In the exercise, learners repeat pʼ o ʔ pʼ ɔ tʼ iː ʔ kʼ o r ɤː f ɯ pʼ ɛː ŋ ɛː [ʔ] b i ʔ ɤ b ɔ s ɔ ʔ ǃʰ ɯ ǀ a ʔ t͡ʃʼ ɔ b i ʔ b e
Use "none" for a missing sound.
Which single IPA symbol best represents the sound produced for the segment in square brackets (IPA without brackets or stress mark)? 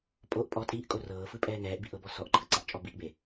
ʔ